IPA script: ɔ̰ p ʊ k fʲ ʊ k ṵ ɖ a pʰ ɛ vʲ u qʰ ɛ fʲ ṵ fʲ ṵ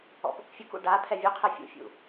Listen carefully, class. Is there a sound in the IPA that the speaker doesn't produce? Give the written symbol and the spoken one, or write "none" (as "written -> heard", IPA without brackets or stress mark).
none